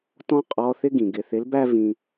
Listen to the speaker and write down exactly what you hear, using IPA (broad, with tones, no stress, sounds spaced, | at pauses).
t ɔ̃˥ qʼ ɔ˧ θ ɪ˥ ɡ ĩ˩ ɡ ɪ˩˧ θ ɪ˨˥ l b æ˥ v ĩ˧